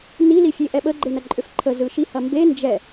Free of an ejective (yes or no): no